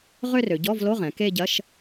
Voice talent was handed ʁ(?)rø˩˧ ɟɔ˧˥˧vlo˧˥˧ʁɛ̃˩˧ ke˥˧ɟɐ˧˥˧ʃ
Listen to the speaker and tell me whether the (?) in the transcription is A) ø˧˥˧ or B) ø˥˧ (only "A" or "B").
B